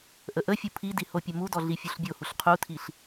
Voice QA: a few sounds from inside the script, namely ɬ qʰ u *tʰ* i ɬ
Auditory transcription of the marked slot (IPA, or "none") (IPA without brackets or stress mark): tʰ